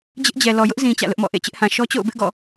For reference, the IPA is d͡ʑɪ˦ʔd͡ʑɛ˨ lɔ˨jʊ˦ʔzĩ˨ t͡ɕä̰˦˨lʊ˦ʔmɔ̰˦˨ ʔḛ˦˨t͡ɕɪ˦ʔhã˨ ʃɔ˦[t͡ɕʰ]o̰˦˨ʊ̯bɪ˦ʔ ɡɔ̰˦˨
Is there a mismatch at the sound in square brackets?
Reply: yes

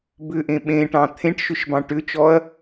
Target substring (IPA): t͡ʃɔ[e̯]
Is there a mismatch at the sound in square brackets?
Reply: yes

